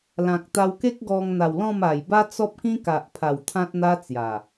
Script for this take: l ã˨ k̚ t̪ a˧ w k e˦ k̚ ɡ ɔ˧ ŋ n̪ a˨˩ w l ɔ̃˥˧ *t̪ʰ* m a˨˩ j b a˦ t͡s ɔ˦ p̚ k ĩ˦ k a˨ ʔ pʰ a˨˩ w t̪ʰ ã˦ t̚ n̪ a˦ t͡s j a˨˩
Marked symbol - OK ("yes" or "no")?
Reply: no